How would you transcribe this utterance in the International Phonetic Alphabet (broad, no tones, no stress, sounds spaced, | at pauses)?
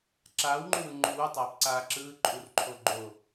ǁ aː w ŋ͡ǃ u w ɯ ŋ͡ǃ u w u tˤ aː p ǀ aː ǁ ɯː ǃʼ u r ǃʰ o ɡ͡ǃ o